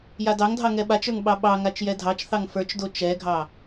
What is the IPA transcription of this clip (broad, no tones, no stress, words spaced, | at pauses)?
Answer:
jadɑŋdʱɑ ŋɛɓat͡ʃə˞ŋ ɓɑɓɑŋat͡ʃ jɛdʱɑt͡ʃθɑŋ fə˞t͡ʃdo t͡ʃɛɡʱɑ